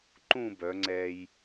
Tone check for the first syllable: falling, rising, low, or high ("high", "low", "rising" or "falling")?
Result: falling